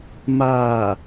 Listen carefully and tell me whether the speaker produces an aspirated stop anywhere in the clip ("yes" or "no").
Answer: no